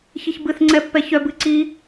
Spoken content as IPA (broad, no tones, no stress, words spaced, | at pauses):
çiçbɨθ ŋ͡ǀɛpːɛçœb ɨǀi